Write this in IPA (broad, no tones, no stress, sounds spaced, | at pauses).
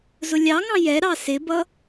z ʊ lʲ ɑ ŋ ɑ̃ j ɛ ɾ ɑ s ɪ b ʌ